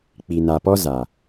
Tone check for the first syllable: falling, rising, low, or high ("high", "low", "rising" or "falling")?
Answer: low